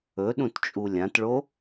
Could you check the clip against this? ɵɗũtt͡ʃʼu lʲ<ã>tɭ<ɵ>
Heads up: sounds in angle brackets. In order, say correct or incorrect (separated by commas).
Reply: correct, incorrect